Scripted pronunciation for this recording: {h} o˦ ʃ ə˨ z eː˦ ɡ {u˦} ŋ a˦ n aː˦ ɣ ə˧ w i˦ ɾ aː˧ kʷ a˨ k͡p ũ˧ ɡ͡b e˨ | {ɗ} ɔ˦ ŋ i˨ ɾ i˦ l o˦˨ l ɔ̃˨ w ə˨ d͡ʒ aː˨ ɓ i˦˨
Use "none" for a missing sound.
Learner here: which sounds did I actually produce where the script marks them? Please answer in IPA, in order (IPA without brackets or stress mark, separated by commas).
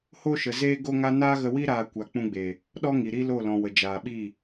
h, o˦, ɗ